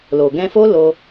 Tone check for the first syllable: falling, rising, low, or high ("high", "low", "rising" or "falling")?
low